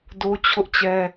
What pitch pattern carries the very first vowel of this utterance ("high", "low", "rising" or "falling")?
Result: high